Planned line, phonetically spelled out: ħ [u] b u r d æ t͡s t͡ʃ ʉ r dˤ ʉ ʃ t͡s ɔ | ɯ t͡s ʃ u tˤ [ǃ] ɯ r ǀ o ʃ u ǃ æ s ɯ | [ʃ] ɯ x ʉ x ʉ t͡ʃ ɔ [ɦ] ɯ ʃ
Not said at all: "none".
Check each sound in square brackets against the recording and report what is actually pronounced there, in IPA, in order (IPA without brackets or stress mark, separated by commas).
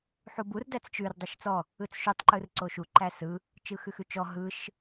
u, ǃ, t͡ʃ, ɦ